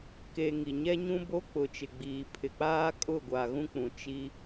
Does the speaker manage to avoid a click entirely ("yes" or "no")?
yes